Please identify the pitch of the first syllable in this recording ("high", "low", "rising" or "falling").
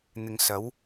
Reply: low